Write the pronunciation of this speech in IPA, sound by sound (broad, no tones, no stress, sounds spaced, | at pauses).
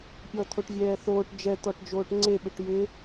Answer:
pʲ ɔ t̪ʰ o ʈ vʲ ɛː θ oː ʈ d͡ʒ ɛ t̪ ɔ ʈ d͡ʒ oː ʈ ŋ͡ǀ e ɓ ɪ ʈ j ɪ